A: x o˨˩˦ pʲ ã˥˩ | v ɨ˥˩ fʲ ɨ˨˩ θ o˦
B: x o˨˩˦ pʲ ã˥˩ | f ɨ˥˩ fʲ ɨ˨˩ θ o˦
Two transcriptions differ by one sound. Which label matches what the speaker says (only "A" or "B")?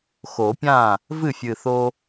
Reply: A